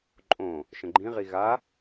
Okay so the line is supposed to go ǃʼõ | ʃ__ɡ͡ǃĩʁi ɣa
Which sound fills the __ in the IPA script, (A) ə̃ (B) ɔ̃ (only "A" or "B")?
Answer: A